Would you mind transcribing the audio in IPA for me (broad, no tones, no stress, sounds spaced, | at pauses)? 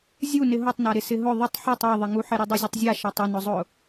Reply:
zʲ u n ɪ ɦ o tˤ n a ɾ ɪ s ɪ ɦ ʊ ðˤ ɪ tˤ ħ e tˤ ɛ ðˤ ɪ ŋ u ħ ɪ ɾ u dˤ u zʲ ʊ tˤ zʲ a ʃ a tˤ ɪ n ʊ zˤ ʊ